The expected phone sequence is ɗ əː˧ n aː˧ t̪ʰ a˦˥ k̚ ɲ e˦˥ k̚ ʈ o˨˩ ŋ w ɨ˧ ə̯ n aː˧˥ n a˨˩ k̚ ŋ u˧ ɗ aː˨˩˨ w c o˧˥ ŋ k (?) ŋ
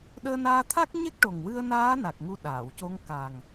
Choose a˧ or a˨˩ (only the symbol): a˨˩